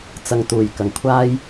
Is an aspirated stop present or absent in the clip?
present